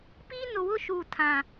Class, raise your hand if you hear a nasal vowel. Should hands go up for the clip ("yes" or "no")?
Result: yes